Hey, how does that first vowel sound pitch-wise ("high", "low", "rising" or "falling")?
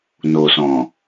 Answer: low